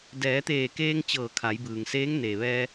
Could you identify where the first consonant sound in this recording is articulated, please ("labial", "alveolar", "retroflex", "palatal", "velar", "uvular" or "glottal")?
alveolar